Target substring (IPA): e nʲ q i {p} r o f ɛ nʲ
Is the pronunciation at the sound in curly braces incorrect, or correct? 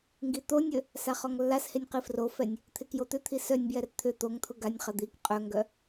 incorrect: f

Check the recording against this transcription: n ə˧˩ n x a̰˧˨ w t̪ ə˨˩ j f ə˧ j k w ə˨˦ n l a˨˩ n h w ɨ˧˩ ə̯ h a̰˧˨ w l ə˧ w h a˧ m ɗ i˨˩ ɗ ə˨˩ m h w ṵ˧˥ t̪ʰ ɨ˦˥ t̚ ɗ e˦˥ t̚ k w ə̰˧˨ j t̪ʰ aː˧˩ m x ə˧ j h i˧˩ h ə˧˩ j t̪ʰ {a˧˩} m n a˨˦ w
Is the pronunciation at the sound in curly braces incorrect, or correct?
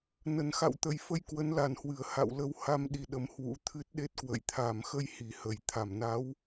correct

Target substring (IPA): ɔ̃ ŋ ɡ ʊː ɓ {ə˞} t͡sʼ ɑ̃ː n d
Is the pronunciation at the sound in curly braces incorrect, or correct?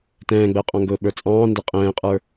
correct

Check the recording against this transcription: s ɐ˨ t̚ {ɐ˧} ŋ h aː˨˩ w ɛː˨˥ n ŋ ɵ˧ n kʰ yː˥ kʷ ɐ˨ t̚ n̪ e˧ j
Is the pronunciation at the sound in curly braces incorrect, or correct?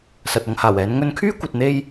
correct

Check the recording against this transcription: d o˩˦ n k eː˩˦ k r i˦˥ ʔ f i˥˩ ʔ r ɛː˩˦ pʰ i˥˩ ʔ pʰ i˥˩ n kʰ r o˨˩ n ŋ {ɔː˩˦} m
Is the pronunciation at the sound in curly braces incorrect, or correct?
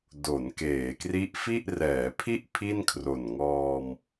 incorrect: ɔː˧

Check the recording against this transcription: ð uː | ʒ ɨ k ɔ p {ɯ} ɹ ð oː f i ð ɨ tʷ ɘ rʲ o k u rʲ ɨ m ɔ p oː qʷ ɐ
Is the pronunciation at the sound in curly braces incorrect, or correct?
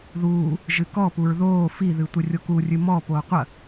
incorrect: u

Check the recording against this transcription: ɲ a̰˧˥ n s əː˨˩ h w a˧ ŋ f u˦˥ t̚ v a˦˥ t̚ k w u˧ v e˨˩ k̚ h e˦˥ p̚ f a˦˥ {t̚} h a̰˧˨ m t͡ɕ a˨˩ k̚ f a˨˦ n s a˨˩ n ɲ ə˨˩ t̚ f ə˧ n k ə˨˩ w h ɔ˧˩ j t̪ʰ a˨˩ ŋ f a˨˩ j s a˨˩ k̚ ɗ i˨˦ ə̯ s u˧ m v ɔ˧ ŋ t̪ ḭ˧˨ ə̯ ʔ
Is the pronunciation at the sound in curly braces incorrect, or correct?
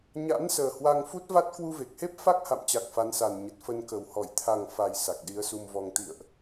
incorrect: k̚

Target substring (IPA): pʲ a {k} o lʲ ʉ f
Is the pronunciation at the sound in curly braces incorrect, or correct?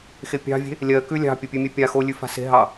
incorrect: x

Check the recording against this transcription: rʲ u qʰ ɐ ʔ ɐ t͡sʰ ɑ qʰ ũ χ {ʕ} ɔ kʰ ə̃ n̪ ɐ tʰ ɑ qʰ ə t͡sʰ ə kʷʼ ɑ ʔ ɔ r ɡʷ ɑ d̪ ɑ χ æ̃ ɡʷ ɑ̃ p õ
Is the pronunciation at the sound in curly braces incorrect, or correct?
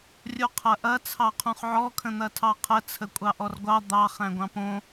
correct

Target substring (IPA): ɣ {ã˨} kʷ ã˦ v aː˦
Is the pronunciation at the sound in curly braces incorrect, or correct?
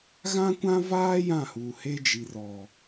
incorrect: ã˦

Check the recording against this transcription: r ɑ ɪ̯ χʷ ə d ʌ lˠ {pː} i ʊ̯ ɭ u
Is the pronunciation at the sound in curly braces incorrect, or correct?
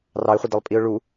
incorrect: pʼ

